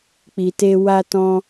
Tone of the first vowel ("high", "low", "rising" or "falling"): low